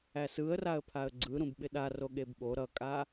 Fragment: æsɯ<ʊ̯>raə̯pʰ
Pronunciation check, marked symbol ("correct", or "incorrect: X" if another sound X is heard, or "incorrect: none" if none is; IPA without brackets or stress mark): incorrect: ə̯